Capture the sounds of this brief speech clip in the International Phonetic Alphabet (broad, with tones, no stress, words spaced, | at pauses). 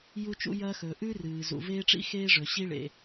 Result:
ju˥t͡ʃṵ˥jɐː˥xɵː˩ ʔʉ˥rɨː˩ zṵ˩veː˥ʈ͡ʂḭ˥ xeː˥ʐɵ˩ ɕi˥ɭḛ˩